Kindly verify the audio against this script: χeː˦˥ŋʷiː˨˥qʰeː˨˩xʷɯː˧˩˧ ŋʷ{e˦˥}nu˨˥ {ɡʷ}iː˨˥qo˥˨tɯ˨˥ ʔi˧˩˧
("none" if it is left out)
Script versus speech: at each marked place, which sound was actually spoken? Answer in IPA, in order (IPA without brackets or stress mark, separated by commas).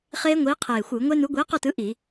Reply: e˦˥, ɡʷ